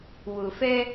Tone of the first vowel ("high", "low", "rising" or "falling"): low